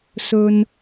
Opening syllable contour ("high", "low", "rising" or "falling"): low